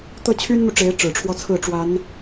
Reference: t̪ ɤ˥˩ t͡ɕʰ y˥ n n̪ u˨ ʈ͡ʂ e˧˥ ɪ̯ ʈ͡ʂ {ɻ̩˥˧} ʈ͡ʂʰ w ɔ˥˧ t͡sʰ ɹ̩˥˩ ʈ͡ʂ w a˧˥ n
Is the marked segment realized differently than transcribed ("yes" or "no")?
yes